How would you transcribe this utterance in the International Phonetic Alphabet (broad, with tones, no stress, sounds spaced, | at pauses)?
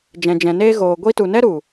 d͡ʒ ɛ̃˨ d͡ʒ ɛ̃˨ n eː˦ ɣ oː˨ ɡʷ i˦ t u˨ n ɛ˦ ɾ u˨